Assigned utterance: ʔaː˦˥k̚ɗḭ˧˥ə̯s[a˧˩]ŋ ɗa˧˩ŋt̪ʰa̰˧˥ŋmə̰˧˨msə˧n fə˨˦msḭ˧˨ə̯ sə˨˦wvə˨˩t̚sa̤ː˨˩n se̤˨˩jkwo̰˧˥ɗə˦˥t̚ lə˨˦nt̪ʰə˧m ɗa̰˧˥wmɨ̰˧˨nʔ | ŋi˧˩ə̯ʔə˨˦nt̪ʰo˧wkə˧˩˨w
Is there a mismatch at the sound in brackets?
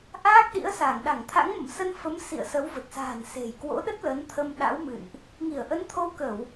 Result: no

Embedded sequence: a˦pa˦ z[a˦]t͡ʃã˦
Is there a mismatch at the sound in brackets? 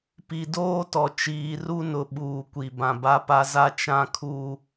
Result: no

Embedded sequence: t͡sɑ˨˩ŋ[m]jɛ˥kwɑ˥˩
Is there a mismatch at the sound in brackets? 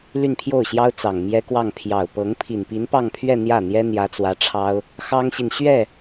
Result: no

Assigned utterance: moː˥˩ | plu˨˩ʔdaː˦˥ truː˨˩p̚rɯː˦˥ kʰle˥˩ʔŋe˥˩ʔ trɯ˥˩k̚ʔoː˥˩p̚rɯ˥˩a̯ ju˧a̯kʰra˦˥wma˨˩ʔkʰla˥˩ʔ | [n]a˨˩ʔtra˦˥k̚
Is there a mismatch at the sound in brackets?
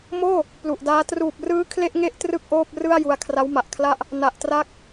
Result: no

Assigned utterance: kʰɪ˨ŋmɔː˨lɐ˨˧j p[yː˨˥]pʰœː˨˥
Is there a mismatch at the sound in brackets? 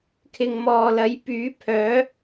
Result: no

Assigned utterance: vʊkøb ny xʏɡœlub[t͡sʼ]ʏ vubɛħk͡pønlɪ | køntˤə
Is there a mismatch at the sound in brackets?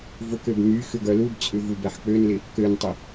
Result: no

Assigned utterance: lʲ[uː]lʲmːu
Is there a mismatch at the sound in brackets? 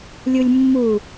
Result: yes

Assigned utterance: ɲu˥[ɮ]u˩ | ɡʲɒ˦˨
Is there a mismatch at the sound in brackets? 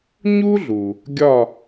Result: no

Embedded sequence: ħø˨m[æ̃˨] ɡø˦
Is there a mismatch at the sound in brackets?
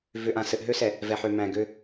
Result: no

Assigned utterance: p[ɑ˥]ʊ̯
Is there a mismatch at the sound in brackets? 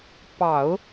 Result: yes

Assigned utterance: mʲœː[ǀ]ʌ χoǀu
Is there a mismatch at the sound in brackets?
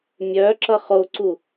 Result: yes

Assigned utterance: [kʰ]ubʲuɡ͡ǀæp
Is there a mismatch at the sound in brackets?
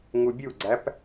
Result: yes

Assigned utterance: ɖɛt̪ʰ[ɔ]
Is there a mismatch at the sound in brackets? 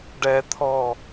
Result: no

